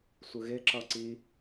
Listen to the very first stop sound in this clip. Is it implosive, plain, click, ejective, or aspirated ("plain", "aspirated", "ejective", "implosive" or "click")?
click